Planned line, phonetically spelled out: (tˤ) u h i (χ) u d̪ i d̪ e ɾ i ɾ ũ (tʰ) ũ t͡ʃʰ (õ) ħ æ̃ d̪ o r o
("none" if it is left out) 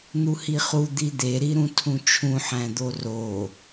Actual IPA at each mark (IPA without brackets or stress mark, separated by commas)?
n̪, χ, tʰ, ũ